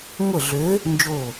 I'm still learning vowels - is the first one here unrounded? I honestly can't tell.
yes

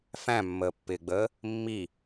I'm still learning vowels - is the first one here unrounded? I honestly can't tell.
yes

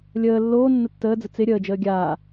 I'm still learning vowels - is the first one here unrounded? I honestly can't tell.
yes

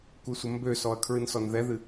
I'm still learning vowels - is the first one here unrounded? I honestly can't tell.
yes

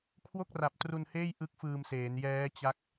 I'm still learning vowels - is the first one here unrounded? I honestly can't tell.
no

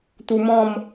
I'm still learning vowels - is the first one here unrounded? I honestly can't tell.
no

